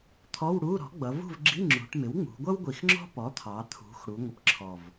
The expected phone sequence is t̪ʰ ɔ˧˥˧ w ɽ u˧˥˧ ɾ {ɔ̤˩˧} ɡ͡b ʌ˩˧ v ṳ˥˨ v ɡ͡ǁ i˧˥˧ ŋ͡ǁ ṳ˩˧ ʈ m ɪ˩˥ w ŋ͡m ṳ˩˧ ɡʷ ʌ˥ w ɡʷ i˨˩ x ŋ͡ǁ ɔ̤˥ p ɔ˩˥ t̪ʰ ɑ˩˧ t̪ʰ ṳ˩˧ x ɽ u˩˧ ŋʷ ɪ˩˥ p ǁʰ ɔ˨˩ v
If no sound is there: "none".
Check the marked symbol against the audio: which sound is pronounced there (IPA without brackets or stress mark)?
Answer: ɔ̤˩˥